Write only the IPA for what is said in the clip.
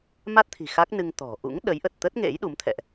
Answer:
m a˦˥ t̚ t̪ʰ i̤˨˩ x a˦˥ k̚ n ɨ˧ ŋ t̪ ɔ̤˨˩ ʔ ṵ˧˥ ŋ ɗ ə˨˦ j ʔ ə˨˩ t̚ t̪ ə˦˥ t̚ ŋ ḛ˧˥ j ɗ u˨˦ m t̪ʰ ɛ̰˧˨ ʔ

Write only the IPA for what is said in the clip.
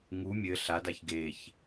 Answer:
ŋ u mʲ ɘ ɬ a d a ç ɡ e ç

